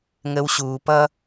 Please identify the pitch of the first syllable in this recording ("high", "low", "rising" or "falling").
low